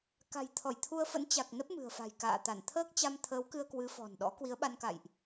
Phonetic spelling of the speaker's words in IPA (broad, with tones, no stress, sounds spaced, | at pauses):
k a̤˨˩ j t̪ʰ ɔ˧˩ j t̪ʰ u˧ ə̯ f ə̰˧˥ n t͡ɕ a˨˩ k̚ n ə˦˥ p̚ m ɨ̤˨˩ ə̯ f a̤˨˩ j k a̰ː˧˨ t̪ a˧˩ n t̪ʰ əː˦˥ k̚ t͡ɕ a˧ m t̪ʰ əː˨˦ w k ɨ˧ ə̯ k w ɨ˨˦ f ɔ̤˨˩ n ɗ ɔ̰˧˥ k w i˨˦ ə̯ ɓ a˧ n k a̰˧˨ j ʔ